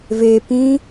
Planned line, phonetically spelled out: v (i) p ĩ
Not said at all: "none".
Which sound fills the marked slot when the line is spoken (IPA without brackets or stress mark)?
e